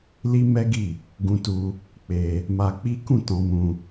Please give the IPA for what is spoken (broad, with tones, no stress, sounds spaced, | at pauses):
l i˦ m ɛ˦ ɡ i˦˨ | ɡ ũ˧ t u˧ | k͡p e˧ | m a˧ k͡p i˦ k ũ˦˨ t ɔ̃˧ m ũ˧